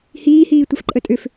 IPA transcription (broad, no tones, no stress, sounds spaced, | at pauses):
h iː h iː tʷ ə f ǃʼ ə tʼ ʏ f